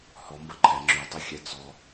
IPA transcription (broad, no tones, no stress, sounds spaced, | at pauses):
h ɔ m b ɐ ǃʰ ɛ ŋ͡ǁ y tˤ ə xʲ ɛ t͡s ɔ